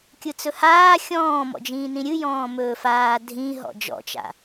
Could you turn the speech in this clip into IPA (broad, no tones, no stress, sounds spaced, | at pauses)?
kʲ ɯ t͡s ɵ h aː xʲ ɔ̃ː m ɔ̰ d͡ʒ ĩː n ĩ ɾʲ ɨ j ɔ̃ː m ɵː f aː dʱ ĩ ɦ ɔ̰ d͡ʒ ɔ̰ t͡ʃ a̰